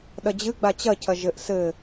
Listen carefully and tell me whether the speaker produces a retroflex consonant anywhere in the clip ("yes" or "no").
no